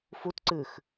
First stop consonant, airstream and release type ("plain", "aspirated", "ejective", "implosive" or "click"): plain